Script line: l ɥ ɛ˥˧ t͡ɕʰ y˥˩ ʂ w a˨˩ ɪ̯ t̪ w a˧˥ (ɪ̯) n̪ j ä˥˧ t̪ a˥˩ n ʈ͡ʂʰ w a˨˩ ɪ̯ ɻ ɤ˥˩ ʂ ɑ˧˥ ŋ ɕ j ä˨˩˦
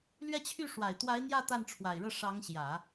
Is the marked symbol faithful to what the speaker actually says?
yes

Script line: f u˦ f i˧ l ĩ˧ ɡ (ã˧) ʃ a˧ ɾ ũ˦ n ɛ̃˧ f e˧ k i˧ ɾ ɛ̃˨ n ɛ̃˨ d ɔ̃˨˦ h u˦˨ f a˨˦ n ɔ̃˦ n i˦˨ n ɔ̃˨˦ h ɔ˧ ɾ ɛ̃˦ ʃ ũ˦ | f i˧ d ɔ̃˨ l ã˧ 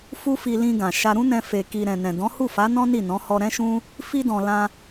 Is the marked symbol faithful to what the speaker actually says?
no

